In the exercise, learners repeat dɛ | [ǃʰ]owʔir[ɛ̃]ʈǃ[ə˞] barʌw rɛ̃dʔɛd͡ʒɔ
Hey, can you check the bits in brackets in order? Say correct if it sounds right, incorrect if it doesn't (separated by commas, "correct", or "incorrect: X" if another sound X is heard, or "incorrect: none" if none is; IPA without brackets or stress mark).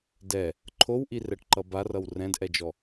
correct, incorrect: ɛ, incorrect: ʌ